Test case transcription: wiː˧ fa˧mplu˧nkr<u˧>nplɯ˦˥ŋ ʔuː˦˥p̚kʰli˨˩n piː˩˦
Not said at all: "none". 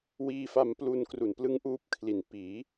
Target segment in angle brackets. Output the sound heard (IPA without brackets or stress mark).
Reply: u˨˩